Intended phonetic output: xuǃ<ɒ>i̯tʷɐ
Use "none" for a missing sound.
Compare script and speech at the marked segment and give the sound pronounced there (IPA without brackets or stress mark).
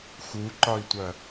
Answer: ɒ